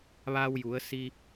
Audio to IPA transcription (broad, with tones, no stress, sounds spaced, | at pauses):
ʋ aː˧ w j u˩˧ ə̯ s i˧